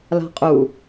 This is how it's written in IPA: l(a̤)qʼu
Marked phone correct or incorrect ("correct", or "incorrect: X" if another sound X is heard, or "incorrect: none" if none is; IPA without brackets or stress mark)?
correct